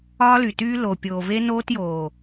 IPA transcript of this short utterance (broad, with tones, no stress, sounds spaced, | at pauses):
ɒː˦ l y˨ t yː˦ l o˨ pʲ oː˨ v e˦ n oː˦ t j oː˨